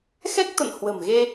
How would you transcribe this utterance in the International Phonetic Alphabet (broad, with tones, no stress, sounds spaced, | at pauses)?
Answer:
x ɛ˦˥ k̚ t̪ ə̰˧˨ n h w ə̤˨˩ m ɣ e˧